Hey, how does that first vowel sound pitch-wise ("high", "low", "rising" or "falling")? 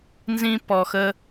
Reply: high